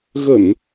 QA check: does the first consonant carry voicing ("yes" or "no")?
yes